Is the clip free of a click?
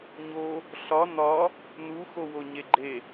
no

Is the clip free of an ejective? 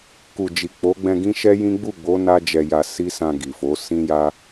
yes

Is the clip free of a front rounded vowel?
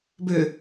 no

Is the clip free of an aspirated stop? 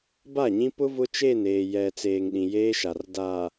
yes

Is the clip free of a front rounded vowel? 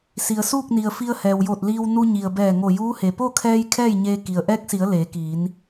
yes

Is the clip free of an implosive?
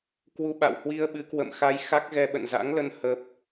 no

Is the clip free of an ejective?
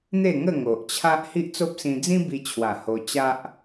yes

